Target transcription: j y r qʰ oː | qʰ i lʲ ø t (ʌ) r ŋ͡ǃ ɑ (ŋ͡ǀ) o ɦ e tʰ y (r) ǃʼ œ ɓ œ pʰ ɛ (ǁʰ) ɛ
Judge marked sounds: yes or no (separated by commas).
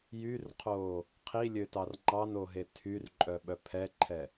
no, no, yes, no